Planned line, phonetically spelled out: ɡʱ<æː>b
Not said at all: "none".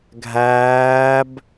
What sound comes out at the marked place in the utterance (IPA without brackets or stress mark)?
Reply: æː